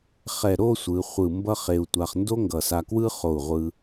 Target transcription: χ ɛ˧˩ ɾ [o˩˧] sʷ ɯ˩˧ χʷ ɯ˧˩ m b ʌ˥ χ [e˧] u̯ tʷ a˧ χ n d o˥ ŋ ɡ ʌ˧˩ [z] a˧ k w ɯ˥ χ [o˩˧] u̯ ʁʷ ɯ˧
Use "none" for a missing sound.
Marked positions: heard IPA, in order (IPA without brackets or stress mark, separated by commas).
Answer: o˥˧, e˧, s, o˧˩